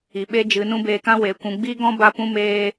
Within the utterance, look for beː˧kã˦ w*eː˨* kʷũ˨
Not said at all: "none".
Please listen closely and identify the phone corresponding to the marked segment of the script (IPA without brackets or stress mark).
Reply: e˨